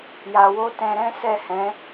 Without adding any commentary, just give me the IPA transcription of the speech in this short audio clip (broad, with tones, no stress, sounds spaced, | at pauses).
j a˧ w o˦ t ɛ̃˧ ɾ ɛ̃˦ s ɛ˦˨ h ɛ̃˨˦